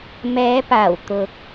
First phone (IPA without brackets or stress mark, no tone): m